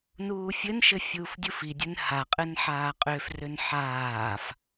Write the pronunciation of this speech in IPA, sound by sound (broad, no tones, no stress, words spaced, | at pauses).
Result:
nuːfʲɘnʃɘ fʲuːfdʲufidʲɘn haqʼɘn ħaːqʼøfrøn ħaːf